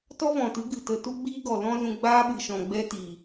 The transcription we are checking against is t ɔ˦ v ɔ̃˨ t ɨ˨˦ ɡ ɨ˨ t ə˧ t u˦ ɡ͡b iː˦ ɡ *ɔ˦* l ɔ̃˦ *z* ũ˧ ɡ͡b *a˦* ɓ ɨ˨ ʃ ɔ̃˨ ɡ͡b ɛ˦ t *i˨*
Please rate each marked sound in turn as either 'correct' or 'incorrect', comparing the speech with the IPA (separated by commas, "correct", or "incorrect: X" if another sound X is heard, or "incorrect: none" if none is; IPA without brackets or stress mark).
incorrect: ɔ˨, correct, incorrect: aː˦, correct